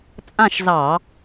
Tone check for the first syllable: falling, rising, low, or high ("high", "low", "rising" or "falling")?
falling